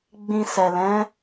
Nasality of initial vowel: nasal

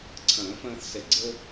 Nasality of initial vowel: nasal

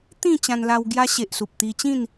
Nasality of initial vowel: nasal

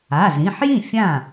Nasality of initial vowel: oral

